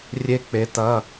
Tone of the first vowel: high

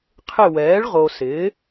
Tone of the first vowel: falling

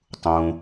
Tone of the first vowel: low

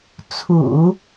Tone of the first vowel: low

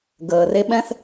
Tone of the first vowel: low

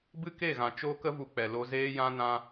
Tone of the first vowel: high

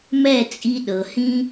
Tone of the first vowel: falling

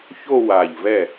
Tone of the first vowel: falling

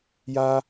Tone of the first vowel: high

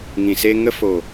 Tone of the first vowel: low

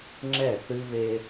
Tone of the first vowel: falling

